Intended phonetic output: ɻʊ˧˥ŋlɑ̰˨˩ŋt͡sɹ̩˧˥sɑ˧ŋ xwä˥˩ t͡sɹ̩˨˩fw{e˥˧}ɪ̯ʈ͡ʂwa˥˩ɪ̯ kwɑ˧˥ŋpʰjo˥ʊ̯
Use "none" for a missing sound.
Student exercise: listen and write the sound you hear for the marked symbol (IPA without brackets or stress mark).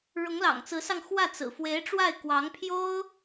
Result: e˧˥